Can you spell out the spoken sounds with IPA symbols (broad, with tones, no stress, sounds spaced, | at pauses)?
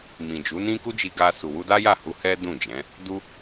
m ĩ˨ d͡ʒ u˨˦ n ĩ˦ k u˦ d͡ʒ i˧ ɡ a˧ s u˨ w u˧ d a˦ j a˦˨ h u˧ h ɛ˦ d ũ˦˨ d͡ʒ ɛ̃˨˦ | d u˦